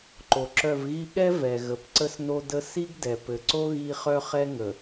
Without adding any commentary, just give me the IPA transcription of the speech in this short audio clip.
ǃ o˨ ǁ œ˦˨ v ɣ i˦ ɠ ɛ˦ v ɛ˨ ɣ ə˨˦ p ǀ ə˦ s n o˦ d ə˦ s i˦ ɡ d ɛ˨ p ɘ˨ ǀ o˦ ɣ i˦ χ œ˦ χ ɛ˦ ŋ ə˨

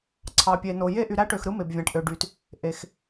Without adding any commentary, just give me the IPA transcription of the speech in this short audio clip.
ǀʰ ɑ˧ pʲ e˧ n o˧ j e˥ ʔ y˧ ɾ æ˥ ʈ ø˧ x ɾ ɯ˥ m e˧ b vʲ æ̃˧ ʈ ʔ ø˧ ɖ y˧ t | ʔ e˧ x

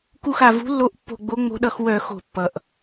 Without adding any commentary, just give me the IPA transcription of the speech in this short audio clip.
k u˧˩ x a˩ v ṳ˨˦ lː o˨˦ ʔ pː o̤˧˩ ɡ͡b o˨˦ ŋ͡m o̤˨˦ ɗ ʌ˧˩˧ x w œ˧˩˧ x o̤˧˩˧ pː ʌ˩ ʔ

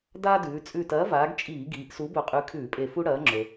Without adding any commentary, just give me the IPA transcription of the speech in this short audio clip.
d aː˥ d ʉː˩˧ t͡sʼ ʉ˧˩ t ɐː˨˥ v aː˩˧ ɡ t͡ʃʼ iː˧˩˧ ɡ iː˩˧ ʔ s u˨˥ b ɵ˧˩ qʼ ʉ˨˥ kʰ ʉː˧˩˧ pʼ e˧˩ f u˥ ɽ ɐː˨˥ ŋ͡ǁ ɵ˩

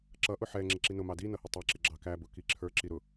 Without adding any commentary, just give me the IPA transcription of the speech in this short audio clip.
ǁ ʌ ʔ ʊ ħ ɛ ŋ͡ǁ ɪ ǁ i n ʊ m ɑ d i n ʌ h ʊ tˤ ɛ ǁ ɪ ɡ͡ǁ ɑ k æ b ʊ k i ǁʰ ə˞ ǁ i ɾ ʊ

